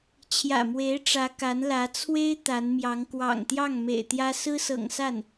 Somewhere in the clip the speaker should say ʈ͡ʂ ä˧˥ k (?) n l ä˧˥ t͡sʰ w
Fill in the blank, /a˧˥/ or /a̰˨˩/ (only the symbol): a˧˥